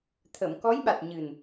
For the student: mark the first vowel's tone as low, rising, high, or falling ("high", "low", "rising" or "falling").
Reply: low